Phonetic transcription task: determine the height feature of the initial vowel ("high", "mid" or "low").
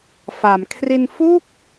low